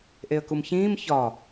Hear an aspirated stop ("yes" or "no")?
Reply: no